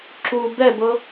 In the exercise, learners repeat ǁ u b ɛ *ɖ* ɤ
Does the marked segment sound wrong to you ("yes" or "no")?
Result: yes